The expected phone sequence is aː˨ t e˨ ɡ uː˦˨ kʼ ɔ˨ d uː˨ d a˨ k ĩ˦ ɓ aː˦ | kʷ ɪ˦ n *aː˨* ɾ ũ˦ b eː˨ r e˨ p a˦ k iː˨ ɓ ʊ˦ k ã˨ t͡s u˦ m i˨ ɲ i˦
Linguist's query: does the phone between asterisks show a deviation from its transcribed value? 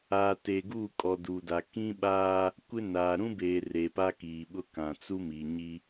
no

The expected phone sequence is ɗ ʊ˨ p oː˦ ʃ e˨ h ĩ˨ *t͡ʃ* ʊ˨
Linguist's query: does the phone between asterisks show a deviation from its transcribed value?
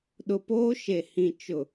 no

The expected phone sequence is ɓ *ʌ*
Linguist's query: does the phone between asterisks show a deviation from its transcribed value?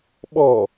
yes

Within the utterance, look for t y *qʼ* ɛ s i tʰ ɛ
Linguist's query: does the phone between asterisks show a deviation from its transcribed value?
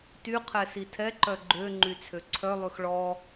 yes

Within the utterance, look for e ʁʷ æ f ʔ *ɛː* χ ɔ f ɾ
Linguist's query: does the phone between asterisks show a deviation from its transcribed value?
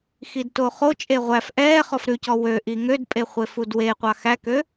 no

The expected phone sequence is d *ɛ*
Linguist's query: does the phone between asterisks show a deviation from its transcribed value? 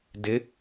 yes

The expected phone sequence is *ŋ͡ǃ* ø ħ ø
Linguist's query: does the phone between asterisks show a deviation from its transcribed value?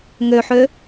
yes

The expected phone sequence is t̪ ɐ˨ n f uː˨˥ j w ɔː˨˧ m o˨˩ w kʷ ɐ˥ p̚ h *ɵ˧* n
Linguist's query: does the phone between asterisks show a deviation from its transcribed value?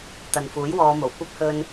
no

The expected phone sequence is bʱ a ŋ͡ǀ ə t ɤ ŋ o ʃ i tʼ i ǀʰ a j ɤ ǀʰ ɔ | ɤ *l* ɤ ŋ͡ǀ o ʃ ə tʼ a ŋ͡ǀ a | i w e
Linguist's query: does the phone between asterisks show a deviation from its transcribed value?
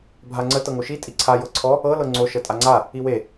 no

